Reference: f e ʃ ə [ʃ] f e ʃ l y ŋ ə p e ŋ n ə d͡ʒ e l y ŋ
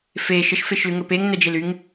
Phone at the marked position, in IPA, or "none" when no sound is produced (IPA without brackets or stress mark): ʃ